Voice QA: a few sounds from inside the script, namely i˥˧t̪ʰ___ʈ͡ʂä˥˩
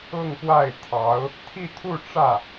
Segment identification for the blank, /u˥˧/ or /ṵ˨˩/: u˥˧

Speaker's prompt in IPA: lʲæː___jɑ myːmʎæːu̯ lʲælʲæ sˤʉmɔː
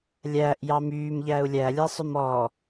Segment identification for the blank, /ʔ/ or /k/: ʔ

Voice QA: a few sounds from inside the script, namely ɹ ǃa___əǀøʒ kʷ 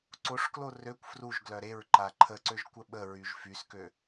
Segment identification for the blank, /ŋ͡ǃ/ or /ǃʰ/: ǃʰ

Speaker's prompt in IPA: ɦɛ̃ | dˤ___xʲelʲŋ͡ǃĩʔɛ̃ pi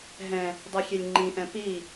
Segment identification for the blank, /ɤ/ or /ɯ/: ɯ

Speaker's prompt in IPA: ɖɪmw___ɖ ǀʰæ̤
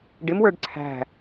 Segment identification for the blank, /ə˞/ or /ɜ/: ə˞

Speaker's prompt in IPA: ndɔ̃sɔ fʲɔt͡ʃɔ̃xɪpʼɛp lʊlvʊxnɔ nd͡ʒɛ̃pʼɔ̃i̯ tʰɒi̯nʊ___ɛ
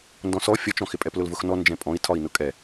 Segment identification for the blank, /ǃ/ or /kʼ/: kʼ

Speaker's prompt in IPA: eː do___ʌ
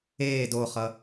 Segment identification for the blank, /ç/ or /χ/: χ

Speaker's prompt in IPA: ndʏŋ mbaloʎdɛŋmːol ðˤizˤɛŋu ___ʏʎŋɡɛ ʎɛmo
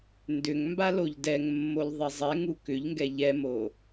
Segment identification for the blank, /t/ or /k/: k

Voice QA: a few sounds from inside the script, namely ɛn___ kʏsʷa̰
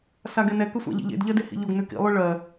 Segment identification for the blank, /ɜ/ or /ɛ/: ɛ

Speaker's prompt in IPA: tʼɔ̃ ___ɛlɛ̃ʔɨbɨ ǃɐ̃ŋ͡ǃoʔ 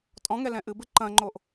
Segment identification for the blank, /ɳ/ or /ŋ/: ŋ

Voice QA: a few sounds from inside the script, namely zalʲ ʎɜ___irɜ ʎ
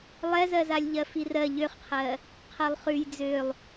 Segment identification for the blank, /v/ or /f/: f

